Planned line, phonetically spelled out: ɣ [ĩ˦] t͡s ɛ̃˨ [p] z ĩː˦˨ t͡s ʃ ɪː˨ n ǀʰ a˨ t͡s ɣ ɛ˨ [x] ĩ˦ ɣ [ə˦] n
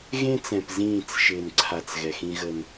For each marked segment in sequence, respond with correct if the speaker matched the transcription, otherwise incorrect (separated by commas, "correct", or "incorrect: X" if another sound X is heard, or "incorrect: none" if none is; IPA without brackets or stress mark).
incorrect: ẽ˦, correct, correct, correct